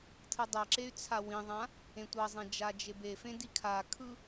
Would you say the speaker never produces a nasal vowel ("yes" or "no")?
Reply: no